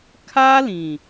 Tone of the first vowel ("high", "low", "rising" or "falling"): high